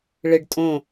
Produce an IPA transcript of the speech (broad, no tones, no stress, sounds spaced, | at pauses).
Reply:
ɭ ɘ ɖ tʼ õ